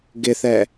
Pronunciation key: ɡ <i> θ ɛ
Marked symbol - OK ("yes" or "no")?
no